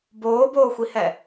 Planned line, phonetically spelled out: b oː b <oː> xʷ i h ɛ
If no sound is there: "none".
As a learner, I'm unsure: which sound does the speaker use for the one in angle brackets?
oː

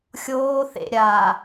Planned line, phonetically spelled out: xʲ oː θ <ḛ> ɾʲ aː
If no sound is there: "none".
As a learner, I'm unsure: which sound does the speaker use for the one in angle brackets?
ḛ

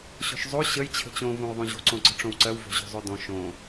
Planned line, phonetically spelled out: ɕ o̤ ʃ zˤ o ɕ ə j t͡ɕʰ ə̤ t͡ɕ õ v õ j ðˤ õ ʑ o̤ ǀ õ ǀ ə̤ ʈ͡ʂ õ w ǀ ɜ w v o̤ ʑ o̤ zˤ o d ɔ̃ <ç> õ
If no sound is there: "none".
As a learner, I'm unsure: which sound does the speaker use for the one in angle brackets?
ʃ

